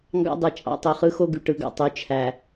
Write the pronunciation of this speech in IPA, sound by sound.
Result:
ŋ ɡ ɑ̰˦ dˤ ɯ˨ t͡ʃʼ ɑ̰˦ tˤ o˨ χ ɯ˦ x o˦ ɡ y˨ ʈ ɯ˨ ɡ ɑ̰˨ tˤ y˨ t͡ʃʰ æ˨

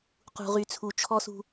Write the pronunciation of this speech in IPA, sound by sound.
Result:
q ṳ˨ ʁ y˨ t͡sʰ u˨ t͡ʃʰ ɔ˦ s ṳ˦

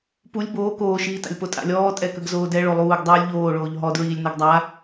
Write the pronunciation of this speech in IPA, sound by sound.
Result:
p u lʲ b oː k oː ʃ iː t a̰ lʲ p o tʼ a̰ lʲ ɔː tʼ ɛ k ə ɡ z oː d ɛ ɭ o lˠ uː ɡ dˤ uː lʲ ʎ oː ɭ oː ʎ ɦ ɔ d ɹ iː lʲ n ɛ ɡ dˤ a

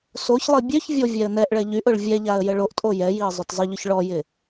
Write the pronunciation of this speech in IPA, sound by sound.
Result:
s o ç lˠ i bʲ ø ç vʲ o vʲ ɛ ə̯ n ɛ ʔ ɭ ɛ ʎ y ʔ ʊ ɭ vʲ ɛ ʎ a ə̯ j ə ɭ o ʔ tʼ o j ɛ j i ə̯ zˤ œ t zˤ ə ʎ ʊ ç ɭ ɔ j ɪ

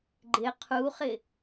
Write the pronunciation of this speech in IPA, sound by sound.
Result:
ɡ͡ǃ ɪ qʰ u χ ɪ

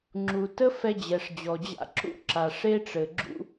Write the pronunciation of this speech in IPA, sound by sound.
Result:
ŋ͡ǁ u˨ t ə˦ f ɛ˧ d͡ʑ ɛ˨ ʂ d͡ʑ ɔ˨ d͡ʑ a̰˧ ǁ ṵ˦ ǁ a˨ ʂ e˦ ʈ͡ʂ ɘ˨ ɡ͡ǁ ṵ˧

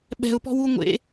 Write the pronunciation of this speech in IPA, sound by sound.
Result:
ɓ ɛ̤ ʊ̯ p ɔ̤ w u ŋʷ ḛ

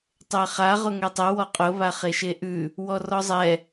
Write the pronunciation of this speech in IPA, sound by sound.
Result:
tˤ ɛ χ a ʁ ʊ ŋ ɛ tˤ ɛ w ɔ qʼ ʊ β a χ e ʃ e ʔ ʉ | w ɔ r ɔ zˤ ɛ

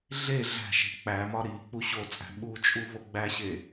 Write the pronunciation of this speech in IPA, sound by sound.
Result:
ɮ e ɮ æ̤ ʃ e̤ k͡p æ m ɒ ɾ i k͡p u ɕ o t͡sʼ æ̤ ɓ u t͡ʃʼ u v o ɡ͡b æ ɕ e

